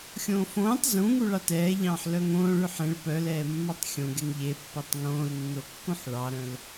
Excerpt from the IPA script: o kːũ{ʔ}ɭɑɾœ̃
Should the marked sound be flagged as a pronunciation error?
yes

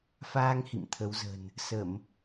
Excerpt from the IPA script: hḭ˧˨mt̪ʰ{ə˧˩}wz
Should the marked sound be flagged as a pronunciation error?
yes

